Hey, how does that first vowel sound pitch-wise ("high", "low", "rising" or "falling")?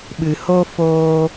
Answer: low